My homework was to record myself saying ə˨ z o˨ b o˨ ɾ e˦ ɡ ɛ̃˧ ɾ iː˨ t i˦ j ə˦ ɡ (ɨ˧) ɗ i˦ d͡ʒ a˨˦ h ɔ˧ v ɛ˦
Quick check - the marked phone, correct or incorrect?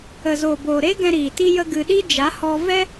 correct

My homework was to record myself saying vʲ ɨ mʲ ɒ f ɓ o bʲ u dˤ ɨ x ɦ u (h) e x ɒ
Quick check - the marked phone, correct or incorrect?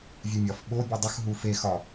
incorrect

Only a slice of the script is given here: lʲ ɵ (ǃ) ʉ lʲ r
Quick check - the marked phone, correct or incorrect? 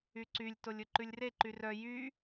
correct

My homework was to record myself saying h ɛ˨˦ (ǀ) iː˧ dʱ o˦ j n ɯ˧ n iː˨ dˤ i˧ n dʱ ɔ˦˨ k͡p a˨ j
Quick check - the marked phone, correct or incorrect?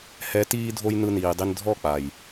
incorrect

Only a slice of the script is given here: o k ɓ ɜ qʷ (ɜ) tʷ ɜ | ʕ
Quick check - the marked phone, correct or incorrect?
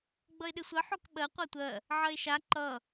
correct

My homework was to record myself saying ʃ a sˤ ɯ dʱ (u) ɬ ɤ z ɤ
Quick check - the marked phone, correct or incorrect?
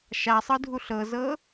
correct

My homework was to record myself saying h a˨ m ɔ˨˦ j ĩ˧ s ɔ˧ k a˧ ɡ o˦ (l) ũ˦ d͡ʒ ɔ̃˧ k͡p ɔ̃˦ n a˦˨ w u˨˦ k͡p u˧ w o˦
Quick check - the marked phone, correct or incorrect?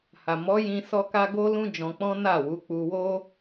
correct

